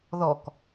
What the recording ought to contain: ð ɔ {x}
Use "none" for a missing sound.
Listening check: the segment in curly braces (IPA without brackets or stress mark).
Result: k